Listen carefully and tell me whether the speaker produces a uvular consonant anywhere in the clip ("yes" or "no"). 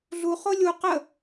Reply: yes